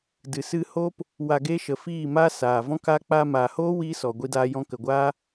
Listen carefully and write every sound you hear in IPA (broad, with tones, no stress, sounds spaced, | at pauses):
d ɨ˨ s ɨ˧ h o˦ p | w a˧ ɡ e˦ ʃ ə˨ f iː˦˨ m a˦ s aː˨ v ɔ̃˦ k a˦ k͡p aː˧ m aː˨ h oː˦ w iː˦ s ɔ˨ ɡʷ i˦ d aː˦ j ɔ̃˦ k ə˨ ɡʷ aː˦